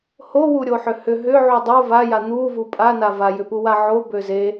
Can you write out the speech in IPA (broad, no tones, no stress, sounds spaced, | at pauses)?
h o w u ɾʲ o ħ ʏ h ʏ ɦ ʏ ʕ u dˤ o v a j a n̪ u v u pʼ a n a v a j ʏ p u w a ʕ o b ø z e